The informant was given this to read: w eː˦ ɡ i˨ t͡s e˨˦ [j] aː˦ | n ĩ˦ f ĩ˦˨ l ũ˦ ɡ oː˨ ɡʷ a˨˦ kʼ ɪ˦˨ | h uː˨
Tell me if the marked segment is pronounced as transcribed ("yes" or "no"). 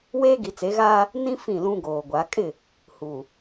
no